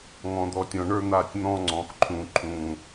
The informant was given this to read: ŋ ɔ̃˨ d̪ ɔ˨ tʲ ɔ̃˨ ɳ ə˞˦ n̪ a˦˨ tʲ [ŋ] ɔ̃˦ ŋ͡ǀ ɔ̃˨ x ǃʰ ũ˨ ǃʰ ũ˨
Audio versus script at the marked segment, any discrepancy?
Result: yes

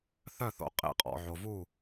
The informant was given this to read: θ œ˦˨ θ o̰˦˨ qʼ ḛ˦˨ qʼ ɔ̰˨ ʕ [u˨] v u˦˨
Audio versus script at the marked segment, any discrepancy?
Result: yes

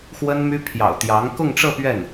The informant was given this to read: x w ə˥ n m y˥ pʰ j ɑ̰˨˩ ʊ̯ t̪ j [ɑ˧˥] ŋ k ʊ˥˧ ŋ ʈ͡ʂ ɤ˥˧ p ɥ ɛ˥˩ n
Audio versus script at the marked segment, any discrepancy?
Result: no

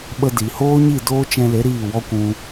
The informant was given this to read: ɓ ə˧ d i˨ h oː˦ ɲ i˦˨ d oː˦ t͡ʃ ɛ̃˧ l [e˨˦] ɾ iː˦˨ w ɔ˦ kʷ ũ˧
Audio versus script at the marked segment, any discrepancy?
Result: no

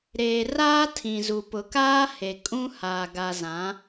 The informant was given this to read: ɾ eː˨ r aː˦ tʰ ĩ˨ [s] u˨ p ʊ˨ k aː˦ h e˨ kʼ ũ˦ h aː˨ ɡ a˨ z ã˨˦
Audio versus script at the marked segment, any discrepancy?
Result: yes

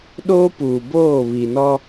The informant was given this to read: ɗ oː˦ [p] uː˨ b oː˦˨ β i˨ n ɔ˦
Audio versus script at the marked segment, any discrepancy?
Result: no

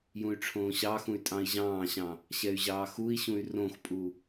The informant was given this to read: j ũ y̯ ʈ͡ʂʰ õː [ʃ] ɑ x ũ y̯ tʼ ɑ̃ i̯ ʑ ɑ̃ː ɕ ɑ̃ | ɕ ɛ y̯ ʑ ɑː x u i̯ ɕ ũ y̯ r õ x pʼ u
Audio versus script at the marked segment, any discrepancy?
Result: yes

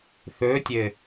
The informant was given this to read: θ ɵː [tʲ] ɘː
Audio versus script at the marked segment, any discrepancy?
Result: no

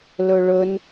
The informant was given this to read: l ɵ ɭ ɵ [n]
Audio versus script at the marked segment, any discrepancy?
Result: no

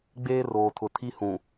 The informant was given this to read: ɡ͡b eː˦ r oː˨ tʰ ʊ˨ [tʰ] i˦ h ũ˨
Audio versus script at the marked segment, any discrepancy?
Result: no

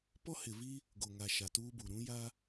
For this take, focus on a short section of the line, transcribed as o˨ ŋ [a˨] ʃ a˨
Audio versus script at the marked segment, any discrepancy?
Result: no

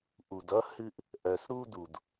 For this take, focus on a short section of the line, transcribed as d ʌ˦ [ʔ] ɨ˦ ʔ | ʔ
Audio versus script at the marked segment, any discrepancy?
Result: yes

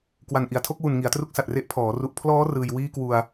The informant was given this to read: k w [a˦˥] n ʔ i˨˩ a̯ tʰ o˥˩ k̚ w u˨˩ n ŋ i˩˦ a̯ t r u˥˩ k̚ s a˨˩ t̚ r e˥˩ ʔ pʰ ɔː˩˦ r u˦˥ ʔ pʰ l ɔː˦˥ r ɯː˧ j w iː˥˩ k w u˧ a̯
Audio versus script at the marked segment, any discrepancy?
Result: yes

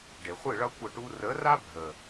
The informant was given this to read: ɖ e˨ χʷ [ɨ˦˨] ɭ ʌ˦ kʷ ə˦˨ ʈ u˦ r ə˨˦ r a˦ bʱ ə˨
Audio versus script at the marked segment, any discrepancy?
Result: no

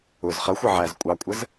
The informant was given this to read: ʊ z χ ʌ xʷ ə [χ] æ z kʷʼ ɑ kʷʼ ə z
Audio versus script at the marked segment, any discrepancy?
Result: yes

